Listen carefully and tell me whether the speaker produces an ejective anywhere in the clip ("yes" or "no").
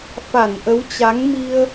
no